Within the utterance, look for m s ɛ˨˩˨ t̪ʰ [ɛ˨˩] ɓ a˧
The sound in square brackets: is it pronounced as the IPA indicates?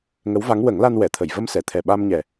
yes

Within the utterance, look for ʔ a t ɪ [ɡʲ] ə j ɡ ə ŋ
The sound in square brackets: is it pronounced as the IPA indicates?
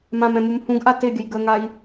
yes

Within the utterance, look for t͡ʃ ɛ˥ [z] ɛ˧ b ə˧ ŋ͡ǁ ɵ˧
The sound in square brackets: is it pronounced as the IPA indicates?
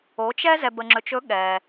yes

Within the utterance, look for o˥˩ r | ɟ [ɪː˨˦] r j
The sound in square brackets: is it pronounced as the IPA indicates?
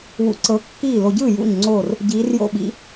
no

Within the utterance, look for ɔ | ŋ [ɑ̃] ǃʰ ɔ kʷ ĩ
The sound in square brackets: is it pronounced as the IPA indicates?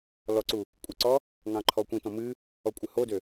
yes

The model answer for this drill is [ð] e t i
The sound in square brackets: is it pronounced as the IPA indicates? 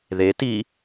yes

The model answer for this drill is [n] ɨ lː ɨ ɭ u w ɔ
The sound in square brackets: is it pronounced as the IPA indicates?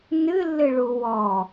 yes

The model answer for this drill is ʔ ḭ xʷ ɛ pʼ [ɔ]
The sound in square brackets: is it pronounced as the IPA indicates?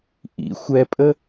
no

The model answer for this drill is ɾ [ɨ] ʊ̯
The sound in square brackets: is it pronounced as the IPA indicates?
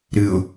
yes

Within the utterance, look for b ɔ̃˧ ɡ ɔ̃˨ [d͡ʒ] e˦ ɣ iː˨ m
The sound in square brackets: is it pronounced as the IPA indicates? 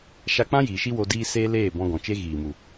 no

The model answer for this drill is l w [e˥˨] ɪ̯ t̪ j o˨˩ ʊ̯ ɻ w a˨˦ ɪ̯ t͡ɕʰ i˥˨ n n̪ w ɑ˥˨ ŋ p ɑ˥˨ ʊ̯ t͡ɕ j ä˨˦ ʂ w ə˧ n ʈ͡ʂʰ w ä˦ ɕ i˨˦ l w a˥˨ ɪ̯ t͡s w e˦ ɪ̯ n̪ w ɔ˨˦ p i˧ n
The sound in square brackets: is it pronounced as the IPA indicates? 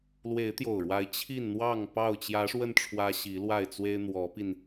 no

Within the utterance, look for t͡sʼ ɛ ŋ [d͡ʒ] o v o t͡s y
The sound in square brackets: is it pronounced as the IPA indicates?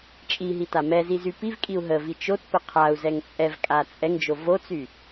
yes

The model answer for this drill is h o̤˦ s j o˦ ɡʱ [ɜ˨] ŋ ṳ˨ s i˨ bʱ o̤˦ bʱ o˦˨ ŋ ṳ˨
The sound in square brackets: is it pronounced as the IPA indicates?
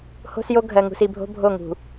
yes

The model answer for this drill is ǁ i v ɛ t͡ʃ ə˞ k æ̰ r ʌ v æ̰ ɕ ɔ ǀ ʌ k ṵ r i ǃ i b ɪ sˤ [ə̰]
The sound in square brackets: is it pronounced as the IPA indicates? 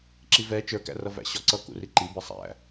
no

